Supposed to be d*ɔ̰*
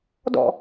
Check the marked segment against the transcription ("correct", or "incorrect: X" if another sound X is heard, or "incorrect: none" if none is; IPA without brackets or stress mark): correct